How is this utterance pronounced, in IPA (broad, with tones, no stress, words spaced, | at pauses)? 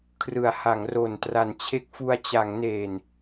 kʰrɯ˩˦a̯ha˩˦ŋ ro˨˩n tra˨˩nt͡ɕʰe˦˥k̚fu˧a̯ t͡ɕa˩˦ŋneː˨˩n